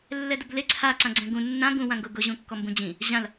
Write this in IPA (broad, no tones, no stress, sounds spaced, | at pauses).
lː ɛ d ʊ b l e ǀʰ a ǀ ã ɡ͡ǀ ɛ̃ ɡ ũ nː ã ɡ ũ w ã ŋ ɡ ʊ ɡ ʊ ʑ ũ kː ɔ m b ũ d͡ʑ ĩ | ʑ ã l